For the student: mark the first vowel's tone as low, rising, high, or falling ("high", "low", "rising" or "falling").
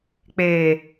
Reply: low